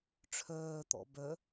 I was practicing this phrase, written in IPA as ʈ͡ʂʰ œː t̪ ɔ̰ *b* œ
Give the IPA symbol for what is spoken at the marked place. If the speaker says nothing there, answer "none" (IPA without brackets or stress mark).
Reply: b